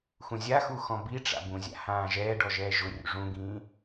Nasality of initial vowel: nasal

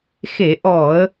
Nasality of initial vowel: oral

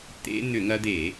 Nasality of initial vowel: oral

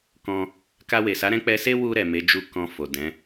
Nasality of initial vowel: nasal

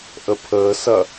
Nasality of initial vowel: oral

